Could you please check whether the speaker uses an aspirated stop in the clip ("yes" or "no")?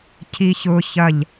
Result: yes